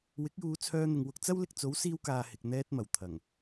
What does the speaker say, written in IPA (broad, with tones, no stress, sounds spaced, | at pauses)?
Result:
w ɪ˨˥ k̚ j uː˨˧ t͡sʰ œː˧ n̪ ɪ˨ ŋ w ʊ˧ k̚ t͡s ɐ˥ w l ɪ˧ k̚ t͡s o˨˥ w s iː˧ w k aː˨ h ɪ˨ k̚ n̪ ɛː˧ t̚ m ɐ˨˩ w t̪ʰ ɐ˨˩ ŋ